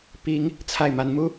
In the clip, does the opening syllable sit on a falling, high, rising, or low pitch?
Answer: rising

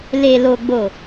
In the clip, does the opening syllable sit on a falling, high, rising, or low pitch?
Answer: low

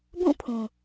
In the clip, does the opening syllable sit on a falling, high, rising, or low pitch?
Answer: falling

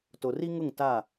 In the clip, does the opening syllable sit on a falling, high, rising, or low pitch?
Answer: low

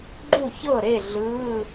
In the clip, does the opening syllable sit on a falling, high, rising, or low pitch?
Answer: falling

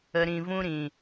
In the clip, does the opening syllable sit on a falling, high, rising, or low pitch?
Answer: low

